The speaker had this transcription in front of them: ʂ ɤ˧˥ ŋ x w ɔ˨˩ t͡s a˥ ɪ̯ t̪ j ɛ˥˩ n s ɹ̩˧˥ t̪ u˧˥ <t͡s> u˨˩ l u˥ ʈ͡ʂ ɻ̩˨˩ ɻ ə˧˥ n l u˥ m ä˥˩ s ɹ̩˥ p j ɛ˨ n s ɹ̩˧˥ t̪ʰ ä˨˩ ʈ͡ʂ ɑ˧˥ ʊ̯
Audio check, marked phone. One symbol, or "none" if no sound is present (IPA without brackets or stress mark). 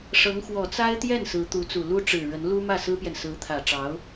t͡s